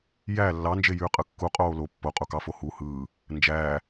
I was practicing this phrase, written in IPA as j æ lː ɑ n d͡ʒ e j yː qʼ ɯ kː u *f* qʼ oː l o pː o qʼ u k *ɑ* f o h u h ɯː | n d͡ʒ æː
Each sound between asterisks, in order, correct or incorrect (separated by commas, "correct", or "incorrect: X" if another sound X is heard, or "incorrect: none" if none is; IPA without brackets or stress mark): incorrect: none, correct